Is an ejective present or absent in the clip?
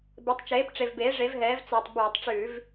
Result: absent